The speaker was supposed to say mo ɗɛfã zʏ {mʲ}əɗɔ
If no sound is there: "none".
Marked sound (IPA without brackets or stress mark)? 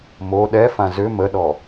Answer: m